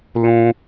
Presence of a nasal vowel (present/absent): present